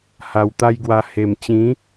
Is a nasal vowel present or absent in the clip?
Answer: present